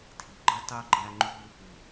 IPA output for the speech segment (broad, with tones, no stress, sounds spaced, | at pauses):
tʰ i˨ ɡ͡ǃ ɯ˦ tˤ y˦ ɡ͡ǃ æ˦ ŋ͡ǃ u˦ | ɯ˨